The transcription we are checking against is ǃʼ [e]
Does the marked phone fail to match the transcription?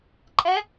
yes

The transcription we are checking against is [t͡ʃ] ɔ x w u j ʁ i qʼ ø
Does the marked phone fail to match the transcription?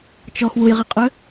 no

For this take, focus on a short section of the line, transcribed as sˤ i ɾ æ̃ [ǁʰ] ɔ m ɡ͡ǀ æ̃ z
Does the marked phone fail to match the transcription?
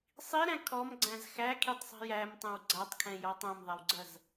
yes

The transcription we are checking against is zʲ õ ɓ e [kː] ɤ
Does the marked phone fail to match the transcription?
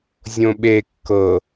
no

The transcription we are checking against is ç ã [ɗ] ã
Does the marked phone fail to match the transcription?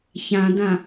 yes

